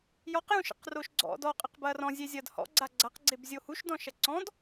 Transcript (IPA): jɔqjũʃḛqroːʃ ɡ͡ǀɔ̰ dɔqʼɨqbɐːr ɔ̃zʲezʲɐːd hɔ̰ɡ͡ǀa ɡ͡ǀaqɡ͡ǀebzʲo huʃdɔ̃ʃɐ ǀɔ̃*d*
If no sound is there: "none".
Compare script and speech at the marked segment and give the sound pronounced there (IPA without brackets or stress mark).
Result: d